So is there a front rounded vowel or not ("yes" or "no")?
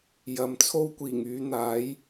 yes